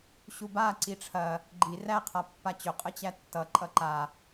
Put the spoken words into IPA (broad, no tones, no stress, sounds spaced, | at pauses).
ɕ u b a ǀ i ʈ͡ʂʰ ɐ | ɡ͡ǃ i r æ qʰ a pː a t͡ɕ ɵ qʼ ə t͡ɕ æ tː ʌ ǃʼ ʌ ǃ a